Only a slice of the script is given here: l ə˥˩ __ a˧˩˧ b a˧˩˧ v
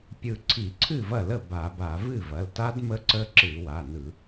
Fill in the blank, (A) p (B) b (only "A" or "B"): B